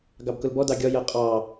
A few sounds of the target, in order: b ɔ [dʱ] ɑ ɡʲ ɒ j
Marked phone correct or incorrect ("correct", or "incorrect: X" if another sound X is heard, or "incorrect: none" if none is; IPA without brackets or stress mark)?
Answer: incorrect: d